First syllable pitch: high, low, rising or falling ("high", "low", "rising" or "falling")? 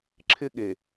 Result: high